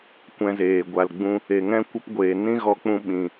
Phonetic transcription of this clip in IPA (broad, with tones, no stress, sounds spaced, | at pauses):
kʷ ɛ̃˧ z eː˨ ɡʷ a˨ l ɡ͡b ũ˧ | e˨ ŋ ɛ̃˦ kʷ ə˦ p ɡʷ eː˨ n ĩ˦ ɣ ɔ˧ k͡p ũ˧ ɓ ĩ˨